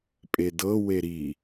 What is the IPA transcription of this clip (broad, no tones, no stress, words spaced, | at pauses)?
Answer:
pʼedɤ weɾi